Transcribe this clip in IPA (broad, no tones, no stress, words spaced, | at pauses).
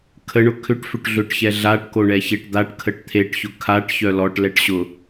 kʰəɳʊ kʰʏʈ fʏʈɮʏʈçɛ ɮaʈkoɳɛçeʈ d̪aʈkʰəʈ t̪ʰeʈçʊ kʰaʈ çœlɔʈ lɛʈɕʊ